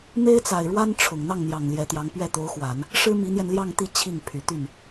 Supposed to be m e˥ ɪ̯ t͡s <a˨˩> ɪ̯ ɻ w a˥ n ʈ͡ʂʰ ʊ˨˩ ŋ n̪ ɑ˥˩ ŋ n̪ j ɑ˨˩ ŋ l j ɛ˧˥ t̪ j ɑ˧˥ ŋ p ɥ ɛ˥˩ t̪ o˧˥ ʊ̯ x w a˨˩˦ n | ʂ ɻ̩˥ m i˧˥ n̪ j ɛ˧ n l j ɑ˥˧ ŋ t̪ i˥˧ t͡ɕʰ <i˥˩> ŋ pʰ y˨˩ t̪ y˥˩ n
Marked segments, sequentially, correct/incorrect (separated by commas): correct, correct